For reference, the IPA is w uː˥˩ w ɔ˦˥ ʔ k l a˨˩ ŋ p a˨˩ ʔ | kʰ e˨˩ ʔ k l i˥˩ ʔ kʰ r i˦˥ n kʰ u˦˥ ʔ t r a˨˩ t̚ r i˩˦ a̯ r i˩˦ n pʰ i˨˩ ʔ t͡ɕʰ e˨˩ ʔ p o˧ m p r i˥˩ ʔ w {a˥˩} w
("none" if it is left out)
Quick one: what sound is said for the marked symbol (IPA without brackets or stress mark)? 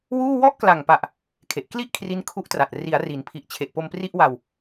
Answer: a˧